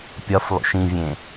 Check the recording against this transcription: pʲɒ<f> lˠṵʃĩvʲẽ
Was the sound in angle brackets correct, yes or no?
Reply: yes